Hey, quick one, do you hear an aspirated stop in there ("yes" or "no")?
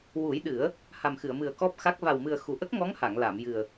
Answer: no